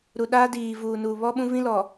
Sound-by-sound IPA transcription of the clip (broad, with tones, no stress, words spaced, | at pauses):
ɾu˨ɗaː˦ diː˨vuː˨nuː˨ βɔ˦ɓũ˦vĩ˦lɔ˨